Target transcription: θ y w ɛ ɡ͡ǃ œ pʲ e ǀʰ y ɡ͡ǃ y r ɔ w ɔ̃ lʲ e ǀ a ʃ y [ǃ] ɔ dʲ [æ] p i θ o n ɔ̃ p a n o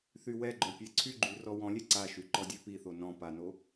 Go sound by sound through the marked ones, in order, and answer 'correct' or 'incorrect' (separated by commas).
correct, incorrect